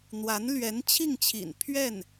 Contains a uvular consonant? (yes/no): no